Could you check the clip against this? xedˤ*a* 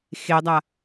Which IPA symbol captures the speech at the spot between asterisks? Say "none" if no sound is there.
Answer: a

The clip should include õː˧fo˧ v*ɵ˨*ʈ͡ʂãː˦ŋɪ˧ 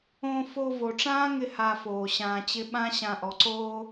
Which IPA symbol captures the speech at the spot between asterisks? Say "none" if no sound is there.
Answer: o˨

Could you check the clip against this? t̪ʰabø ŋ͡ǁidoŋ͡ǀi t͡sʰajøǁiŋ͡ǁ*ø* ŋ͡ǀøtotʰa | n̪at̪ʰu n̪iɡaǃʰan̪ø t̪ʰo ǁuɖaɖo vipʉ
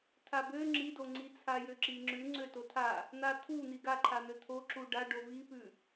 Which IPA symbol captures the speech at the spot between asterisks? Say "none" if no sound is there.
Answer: ʉ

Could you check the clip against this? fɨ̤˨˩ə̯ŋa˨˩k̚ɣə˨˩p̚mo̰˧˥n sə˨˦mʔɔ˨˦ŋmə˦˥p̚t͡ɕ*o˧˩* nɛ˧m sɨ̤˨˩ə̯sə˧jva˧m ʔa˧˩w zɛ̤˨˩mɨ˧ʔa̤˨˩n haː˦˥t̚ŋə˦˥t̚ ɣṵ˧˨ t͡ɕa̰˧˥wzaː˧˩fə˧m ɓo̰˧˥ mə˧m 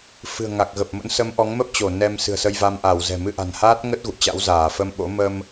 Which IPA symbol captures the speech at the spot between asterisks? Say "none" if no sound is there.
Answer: o˧˩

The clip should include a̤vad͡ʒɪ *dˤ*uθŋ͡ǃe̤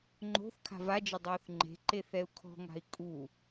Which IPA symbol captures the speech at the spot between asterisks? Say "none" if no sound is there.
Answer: dˤ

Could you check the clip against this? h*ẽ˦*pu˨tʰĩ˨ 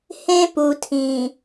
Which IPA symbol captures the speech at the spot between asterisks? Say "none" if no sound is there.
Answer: ẽ˦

